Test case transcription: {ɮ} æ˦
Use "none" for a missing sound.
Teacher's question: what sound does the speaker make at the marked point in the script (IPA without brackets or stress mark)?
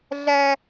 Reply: ɮ